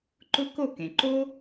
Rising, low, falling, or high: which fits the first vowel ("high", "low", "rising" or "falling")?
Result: high